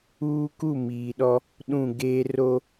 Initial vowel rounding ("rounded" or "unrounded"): rounded